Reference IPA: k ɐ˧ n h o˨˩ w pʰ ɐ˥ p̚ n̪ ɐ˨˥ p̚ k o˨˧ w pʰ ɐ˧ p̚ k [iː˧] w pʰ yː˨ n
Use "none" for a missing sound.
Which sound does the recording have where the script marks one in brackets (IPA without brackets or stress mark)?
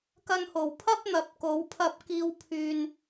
iː˧